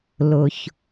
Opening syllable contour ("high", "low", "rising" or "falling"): low